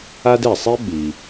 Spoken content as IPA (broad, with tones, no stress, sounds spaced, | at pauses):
a˥ d ɛ˨ sˤ i˥ ɓ i˨